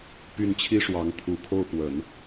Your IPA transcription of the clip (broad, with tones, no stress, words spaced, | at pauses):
py˥˩nt͡ɕʰi˥ʂwɑ˧˥ŋ t̪ʰu˨˩kʰo˥˩ʊ̯pwə˨˩˦n